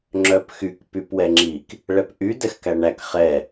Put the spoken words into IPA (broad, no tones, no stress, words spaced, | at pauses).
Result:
ŋ͡ǁœpxyk pypwɛŋ͡ǁik | ɭɛpʔy dɛxkæɳæk χɛ